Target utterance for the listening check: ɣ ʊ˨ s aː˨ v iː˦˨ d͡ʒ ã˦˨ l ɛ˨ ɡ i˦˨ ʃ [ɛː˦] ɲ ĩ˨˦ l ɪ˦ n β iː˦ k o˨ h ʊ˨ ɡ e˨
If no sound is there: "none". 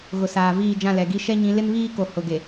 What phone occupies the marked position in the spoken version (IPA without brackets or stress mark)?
ɛ˦